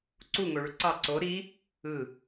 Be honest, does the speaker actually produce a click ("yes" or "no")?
yes